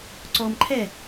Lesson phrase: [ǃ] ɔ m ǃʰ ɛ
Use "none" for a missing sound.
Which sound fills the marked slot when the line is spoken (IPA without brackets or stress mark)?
ǀ